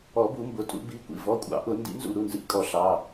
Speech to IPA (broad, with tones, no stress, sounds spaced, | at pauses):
ɔ˨˩˦ b u˨˩˦ m b ʊ˩˧˩ tʼ ṵ˨˩˦ b i˩˧˩ kʷ ḭ˧˩ v ɔ˩˧˩ kʷʼ ɑ̰˨˩˦ ʔ ʊ˨˩˦ n d ḭ˨˩˦ n z ṵ˧˩ ɾ u˩˧˩ n z ḭ˨˩˦ kʼ ɔ˨˩˦ ɬ ɑ˩˧˩